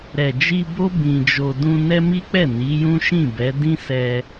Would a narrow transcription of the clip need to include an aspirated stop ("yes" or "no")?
no